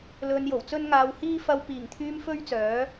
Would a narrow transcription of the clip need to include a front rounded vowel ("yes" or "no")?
yes